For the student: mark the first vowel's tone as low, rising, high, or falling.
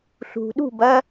low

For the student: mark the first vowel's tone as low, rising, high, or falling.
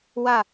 falling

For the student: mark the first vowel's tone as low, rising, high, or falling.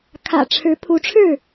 low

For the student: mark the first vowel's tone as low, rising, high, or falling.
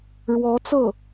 rising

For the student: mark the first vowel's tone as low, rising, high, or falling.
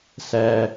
low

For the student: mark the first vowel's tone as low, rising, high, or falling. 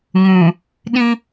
low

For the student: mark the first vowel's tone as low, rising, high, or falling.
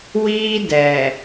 high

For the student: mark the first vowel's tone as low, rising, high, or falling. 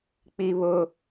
high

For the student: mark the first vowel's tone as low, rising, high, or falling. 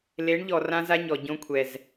rising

